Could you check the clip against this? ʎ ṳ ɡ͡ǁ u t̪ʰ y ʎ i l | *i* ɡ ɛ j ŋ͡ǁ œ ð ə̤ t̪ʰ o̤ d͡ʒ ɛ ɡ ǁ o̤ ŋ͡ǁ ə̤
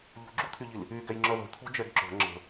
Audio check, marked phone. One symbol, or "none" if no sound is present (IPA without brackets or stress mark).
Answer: y